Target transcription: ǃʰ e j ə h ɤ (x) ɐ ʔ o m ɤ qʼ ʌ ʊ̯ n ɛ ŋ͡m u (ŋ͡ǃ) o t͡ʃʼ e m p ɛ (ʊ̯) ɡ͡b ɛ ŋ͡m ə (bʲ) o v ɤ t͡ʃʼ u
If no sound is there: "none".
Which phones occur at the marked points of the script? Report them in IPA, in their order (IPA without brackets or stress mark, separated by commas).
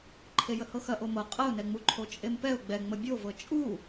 x, ǃʰ, ʊ̯, bʲ